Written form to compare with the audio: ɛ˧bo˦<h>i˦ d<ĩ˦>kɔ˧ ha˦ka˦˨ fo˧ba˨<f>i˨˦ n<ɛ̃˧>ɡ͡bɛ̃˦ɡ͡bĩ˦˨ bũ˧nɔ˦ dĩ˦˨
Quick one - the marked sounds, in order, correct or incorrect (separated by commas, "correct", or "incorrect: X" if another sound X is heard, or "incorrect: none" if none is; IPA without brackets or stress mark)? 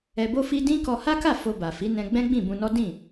incorrect: f, correct, correct, correct